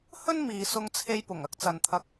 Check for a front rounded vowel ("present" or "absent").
absent